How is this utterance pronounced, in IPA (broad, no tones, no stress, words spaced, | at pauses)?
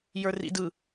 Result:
jə˞rḭdɯ